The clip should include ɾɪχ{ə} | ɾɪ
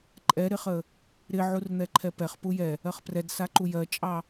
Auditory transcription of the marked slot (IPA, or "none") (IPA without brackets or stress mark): ə